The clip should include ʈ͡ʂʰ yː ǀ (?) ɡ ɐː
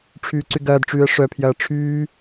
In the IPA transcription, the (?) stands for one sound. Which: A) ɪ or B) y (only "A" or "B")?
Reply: B